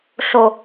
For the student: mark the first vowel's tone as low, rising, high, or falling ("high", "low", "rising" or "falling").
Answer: low